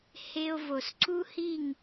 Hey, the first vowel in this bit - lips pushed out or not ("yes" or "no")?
no